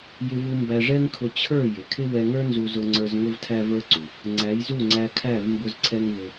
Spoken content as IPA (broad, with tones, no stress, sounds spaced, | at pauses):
j ɪ˧ v u˧ m b æ˧ ʐ ɛ˦ ŋ kʰ ʊ˧ t͡ɕʰ ə˞˦˨ j ɪ˨ kʰ ɪ˦ w ɛ˧ ŋ ə˞˦ n z u˧ z ʊ˧ ŋ͡ǀ ə˞˧ z ŋ ʊ˦ v tʰ æ˦ v ə˞˦ ǀ u˨ | ŋ͡ǀ æ˨˦ j z u˦˨ ŋ͡ǀ æ˧ kʰ æ˦˨ v m b ʊ˦ z ǀʰ ɛ˦ ŋ v ʊ˧